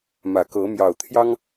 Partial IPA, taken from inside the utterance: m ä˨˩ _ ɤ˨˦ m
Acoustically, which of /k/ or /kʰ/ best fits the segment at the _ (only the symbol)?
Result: k